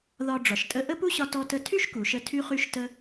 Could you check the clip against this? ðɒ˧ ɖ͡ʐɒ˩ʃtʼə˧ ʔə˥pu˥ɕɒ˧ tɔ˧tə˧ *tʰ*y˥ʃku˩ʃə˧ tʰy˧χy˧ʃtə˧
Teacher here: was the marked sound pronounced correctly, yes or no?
yes